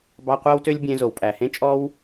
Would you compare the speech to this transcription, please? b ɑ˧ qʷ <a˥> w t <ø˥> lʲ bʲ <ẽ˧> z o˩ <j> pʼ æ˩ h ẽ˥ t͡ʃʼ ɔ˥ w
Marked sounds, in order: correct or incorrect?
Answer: incorrect: æ˥, correct, correct, incorrect: w

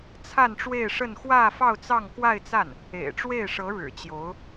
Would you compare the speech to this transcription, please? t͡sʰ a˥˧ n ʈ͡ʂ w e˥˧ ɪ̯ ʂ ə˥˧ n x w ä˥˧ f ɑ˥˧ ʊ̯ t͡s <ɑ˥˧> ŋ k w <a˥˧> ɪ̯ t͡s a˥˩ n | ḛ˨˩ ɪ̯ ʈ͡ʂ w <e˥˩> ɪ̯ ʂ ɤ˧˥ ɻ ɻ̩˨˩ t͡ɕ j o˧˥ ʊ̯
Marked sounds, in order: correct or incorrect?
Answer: correct, correct, correct

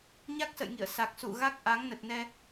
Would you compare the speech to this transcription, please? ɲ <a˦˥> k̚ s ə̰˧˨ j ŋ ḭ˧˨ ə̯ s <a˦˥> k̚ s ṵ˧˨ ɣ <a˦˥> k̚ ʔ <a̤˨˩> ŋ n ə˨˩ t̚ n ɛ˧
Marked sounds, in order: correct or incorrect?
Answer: correct, incorrect: a˨˩, correct, incorrect: a˨˦

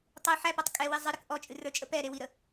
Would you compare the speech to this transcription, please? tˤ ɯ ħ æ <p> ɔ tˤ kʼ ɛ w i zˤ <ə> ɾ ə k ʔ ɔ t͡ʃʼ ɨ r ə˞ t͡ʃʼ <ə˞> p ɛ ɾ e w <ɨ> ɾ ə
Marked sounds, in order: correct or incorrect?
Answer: correct, incorrect: ɨ, incorrect: ə, incorrect: i

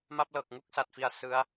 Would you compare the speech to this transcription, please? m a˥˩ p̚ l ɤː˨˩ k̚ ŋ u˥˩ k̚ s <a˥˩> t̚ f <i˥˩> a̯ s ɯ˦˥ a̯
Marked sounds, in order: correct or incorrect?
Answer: incorrect: a˨˩, incorrect: i˧

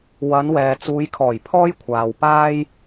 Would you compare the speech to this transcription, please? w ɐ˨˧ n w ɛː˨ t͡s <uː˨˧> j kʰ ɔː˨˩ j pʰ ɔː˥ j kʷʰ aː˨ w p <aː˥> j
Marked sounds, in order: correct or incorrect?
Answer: correct, correct

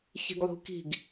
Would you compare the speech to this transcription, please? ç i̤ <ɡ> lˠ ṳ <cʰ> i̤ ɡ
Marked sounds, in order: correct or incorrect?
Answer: correct, incorrect: k

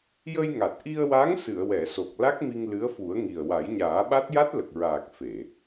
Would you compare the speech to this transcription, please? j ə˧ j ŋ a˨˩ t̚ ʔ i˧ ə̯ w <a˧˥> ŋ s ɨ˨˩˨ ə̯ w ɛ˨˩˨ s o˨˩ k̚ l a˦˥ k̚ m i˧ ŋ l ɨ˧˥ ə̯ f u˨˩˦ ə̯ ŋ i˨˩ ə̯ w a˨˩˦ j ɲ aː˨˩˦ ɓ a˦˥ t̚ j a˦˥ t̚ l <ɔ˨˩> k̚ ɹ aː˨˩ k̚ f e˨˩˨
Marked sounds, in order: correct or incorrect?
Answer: correct, incorrect: ə˨˩

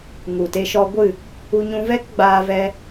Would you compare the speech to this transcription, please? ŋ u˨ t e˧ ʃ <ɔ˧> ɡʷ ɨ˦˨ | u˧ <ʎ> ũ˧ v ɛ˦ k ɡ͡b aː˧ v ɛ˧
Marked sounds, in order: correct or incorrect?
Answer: correct, incorrect: ɲ

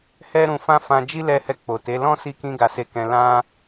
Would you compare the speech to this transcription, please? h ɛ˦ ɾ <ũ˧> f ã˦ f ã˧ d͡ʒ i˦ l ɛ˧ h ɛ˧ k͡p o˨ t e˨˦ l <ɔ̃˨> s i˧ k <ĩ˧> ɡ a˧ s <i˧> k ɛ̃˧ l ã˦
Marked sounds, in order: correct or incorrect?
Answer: correct, incorrect: ɔ̃˦, correct, incorrect: e˧

